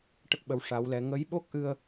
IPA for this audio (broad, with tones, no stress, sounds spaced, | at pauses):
ʈ ə˦˥ k̚ ɓ ə˧˥ w ʂ a˧˥ w l ɛ˧˥ ŋ ə˧˥ j ɓ o˦˥ k̚ ʔ ɨ˧ ə̯